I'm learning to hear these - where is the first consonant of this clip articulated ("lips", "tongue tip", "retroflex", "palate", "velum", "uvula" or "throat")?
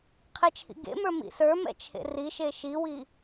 uvula